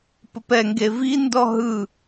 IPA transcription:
pəpɛŋɡe vindɔ ɦɯ

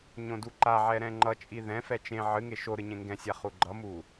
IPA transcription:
ɲõduǃaʕɛ ɾɛ̃ŋ͡ǃʌt͡ʃʼi ðɛ̃fɛ t͡ʃẽ ʕɨŋe ʃoɾɨ ɲẽŋɡɛ̃sʲa χuɡ͡ǃʌmu

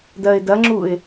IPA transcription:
dɜɪ̯dɐŋ͡ǁuɪ̯

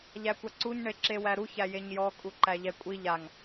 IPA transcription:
ʎækʷaǀuɲ ɳeǁewæɾu çæjeɲjɔ kʼuǃæʎɛkʷʼi ʎaŋ

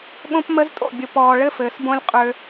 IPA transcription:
ɠõ˦pmə˦ztʼo̰˦˨ bʲʊ˨pɔː˨ ɭɘ˦fɘː˨sbõ˦lʲ qʼø˦

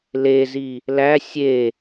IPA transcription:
lezi | læ sʲe

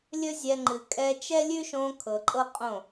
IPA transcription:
lʲɵ˦zʲɛ˧ ŋ͡ǃɨ˨ kʼɛ˧t͡ʃɛ˦lʲʉ˦ʃõ˧ kʰɤ˨ǃʼɤ˦qʼõ˦˨

